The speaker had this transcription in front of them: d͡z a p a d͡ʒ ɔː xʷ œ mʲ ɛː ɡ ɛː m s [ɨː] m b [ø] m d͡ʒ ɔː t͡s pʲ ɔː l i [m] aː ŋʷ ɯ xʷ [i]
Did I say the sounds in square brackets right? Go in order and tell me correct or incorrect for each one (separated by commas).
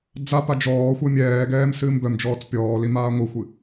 correct, incorrect, correct, incorrect